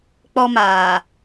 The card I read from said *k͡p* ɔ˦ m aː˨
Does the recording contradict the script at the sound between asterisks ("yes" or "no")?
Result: no